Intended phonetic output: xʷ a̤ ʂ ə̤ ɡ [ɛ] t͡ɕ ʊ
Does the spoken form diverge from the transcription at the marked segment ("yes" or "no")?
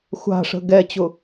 no